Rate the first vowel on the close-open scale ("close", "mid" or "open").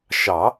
open